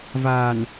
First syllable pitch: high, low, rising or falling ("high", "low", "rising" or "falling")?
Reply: low